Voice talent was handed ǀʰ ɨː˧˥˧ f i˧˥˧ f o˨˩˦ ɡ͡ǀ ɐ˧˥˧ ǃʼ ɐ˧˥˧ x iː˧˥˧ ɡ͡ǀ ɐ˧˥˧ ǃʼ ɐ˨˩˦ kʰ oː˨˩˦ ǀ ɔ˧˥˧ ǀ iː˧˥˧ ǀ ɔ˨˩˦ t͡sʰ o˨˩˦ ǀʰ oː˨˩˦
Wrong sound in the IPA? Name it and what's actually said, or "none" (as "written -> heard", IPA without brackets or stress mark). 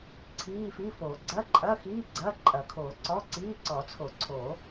ɨː˧˥˧ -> iː˧˥˧